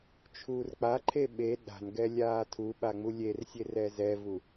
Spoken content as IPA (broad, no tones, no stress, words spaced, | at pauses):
t͡ʃʰuːrk͡paǃʰe ɓe ɗa̤nɡɛ lʲaːtʰuɓa ŋ͡mulʲersʲer ɛzɛvu